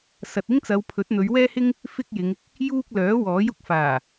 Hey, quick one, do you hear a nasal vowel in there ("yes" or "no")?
no